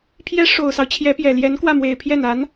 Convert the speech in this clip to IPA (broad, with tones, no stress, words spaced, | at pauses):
pʰjɛ˥ ʂo˨˩ʊ̯sɑ˦ʊ̯ t͡ɕʰjɛ˧˥pjɛ˨˩ ljɛ˧˥nkwä˥˩mwe˨˩ɪ̯ pʰjɛ˥˩n a˧˥n